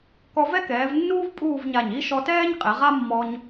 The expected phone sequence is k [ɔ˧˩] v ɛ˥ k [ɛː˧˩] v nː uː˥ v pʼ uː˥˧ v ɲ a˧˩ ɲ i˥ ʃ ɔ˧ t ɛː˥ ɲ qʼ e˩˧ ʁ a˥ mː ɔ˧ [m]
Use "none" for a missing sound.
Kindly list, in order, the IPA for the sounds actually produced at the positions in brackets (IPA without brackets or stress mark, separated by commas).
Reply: ɔ˧, ɛː˩˧, ɲ